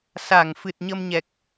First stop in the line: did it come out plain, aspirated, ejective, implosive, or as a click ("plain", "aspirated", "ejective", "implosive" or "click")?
plain